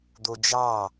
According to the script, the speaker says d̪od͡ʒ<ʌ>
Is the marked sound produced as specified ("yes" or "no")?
no